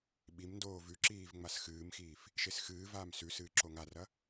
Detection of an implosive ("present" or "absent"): present